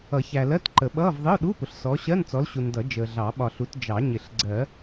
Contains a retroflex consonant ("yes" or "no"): no